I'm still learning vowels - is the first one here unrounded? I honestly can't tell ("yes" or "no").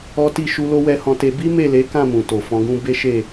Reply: no